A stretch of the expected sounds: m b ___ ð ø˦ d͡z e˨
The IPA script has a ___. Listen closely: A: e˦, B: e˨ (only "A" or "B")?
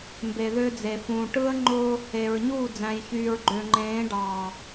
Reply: B